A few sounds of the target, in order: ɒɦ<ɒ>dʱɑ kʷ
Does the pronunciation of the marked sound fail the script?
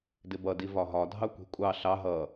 no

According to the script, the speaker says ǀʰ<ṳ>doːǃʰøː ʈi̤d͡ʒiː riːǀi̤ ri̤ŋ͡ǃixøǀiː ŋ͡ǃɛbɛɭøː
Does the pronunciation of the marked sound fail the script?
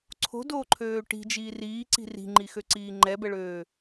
yes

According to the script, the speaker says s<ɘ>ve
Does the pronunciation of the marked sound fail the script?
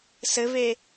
no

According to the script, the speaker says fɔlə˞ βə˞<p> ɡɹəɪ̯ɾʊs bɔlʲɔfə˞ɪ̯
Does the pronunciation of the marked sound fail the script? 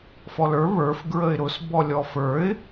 yes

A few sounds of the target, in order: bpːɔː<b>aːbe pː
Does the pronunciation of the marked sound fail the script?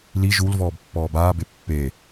no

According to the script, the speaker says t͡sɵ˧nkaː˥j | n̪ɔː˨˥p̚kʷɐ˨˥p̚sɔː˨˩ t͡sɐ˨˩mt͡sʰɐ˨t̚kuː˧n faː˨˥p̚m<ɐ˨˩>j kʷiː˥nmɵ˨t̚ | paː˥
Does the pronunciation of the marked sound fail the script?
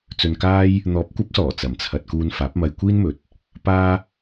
yes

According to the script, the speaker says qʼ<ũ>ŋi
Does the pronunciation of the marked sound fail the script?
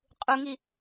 yes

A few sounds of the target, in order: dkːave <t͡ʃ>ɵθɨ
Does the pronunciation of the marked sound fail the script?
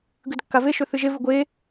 yes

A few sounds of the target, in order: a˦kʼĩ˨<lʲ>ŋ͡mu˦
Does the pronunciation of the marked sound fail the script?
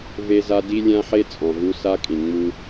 yes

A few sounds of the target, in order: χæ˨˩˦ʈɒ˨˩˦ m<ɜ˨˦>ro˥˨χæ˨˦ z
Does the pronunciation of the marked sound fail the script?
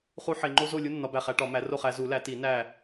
yes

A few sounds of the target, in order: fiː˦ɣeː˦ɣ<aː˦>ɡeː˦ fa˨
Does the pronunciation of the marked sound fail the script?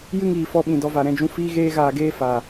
yes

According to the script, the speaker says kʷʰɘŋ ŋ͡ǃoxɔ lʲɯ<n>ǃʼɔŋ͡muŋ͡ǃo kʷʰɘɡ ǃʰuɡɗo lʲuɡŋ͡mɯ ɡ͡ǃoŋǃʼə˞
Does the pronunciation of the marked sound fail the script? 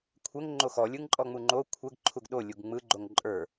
yes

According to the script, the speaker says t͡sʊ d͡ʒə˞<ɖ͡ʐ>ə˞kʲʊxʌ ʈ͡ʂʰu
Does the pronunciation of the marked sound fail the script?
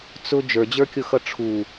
yes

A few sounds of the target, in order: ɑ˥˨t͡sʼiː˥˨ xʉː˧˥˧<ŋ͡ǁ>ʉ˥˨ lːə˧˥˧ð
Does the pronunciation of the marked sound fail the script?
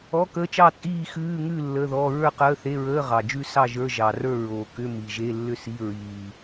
yes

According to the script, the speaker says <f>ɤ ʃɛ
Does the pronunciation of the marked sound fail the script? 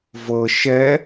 yes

